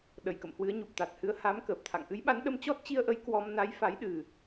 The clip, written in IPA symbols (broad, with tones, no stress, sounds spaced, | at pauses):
ɗ ə˧˩ j k ə̰˧˨ m h w ɨ˨˦ ə̯ ɲ u˨˩ p̚ t̪ a˨˩ t̚ h ɨ˨˦ ə̯ h a˨˦ m k əː˨˩ p̚ t̪ʰ a̰˧˨ ŋ ʔ ɨ˨˦ j ɓ a˨˦ n ɗ ə˧ m t͡ɕ ɔ˦˥ t̚ t͡ɕ i˧ ə̯ ʔ ə˨˦ j k w ɔ˧ m n a˨˦ j f a˨˦ j ɗ ɨ˨˩